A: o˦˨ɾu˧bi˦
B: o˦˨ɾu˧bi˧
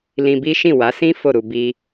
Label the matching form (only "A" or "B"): A